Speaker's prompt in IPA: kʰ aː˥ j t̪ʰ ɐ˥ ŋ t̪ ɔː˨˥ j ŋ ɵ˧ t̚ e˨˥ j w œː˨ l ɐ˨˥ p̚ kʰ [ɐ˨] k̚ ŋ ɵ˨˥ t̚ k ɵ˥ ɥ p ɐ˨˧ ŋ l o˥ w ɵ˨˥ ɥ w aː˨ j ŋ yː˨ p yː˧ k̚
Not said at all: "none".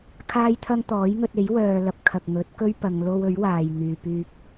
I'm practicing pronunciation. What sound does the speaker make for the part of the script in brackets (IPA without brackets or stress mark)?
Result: ɐ˨